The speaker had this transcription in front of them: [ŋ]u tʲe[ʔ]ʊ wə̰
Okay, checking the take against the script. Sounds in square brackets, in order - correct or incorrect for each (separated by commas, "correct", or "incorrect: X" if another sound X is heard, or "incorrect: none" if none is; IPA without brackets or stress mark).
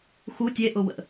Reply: incorrect: x, correct